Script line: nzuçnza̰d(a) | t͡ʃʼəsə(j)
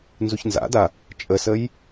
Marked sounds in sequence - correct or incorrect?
correct, correct

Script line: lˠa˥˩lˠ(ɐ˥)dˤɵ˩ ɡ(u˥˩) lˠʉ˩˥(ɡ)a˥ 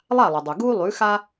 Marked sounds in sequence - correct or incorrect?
incorrect: ɐ˩, incorrect: u˥, incorrect: x

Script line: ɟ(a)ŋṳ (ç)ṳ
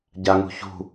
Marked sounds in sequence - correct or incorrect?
correct, correct

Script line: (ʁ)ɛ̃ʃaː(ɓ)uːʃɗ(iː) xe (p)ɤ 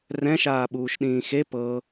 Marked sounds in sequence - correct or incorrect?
incorrect: r, correct, incorrect: ĩː, correct

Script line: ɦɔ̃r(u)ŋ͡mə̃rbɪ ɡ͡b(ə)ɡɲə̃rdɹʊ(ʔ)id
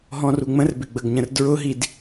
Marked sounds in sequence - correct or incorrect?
correct, correct, incorrect: ɦ

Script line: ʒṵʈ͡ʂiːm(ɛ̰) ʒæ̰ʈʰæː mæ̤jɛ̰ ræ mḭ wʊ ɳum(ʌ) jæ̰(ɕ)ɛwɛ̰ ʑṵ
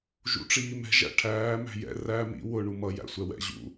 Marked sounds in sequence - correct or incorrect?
incorrect: ɛ̤, correct, incorrect: sʷ

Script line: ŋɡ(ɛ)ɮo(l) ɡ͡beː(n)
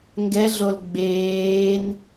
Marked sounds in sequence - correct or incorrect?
correct, correct, correct

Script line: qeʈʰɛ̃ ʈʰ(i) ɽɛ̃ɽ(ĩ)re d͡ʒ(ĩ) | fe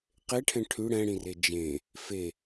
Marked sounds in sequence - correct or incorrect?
incorrect: y, correct, incorrect: ẽ

